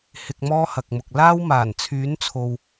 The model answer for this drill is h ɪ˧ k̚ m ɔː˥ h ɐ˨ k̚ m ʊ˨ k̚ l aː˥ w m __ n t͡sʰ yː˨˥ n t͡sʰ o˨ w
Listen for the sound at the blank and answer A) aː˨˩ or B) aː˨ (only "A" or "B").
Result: A